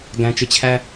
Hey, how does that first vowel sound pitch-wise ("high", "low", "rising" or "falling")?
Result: low